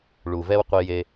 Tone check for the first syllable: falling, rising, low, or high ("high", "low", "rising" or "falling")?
low